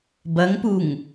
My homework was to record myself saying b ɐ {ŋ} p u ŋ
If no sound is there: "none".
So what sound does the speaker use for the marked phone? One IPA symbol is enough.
ŋ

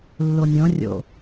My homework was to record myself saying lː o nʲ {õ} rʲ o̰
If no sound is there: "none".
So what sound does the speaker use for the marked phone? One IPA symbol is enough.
õ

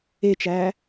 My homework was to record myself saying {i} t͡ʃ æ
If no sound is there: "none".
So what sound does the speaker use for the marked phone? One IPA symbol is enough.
e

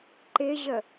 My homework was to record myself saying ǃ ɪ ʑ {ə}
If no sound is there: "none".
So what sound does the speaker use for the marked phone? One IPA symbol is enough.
ə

